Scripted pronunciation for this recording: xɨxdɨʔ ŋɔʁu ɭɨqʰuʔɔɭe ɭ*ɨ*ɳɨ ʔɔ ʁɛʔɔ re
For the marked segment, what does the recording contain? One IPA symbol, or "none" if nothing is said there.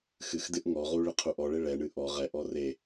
ɛ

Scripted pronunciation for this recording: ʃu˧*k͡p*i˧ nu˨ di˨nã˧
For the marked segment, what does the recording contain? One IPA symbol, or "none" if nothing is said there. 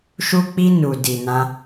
k͡p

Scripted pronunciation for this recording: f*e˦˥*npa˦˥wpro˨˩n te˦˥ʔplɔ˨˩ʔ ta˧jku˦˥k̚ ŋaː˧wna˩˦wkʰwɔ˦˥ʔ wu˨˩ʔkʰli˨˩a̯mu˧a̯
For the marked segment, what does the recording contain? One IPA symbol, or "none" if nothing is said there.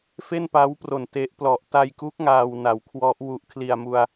e˥˩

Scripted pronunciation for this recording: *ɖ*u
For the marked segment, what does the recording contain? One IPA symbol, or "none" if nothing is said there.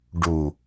ɖ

